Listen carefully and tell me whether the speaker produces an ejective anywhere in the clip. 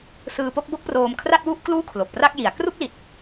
no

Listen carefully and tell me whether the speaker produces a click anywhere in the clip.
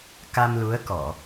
no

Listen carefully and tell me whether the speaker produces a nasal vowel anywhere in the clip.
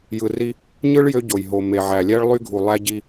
no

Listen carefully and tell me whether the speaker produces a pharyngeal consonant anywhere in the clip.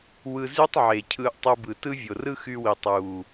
yes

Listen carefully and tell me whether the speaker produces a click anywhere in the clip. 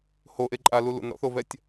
yes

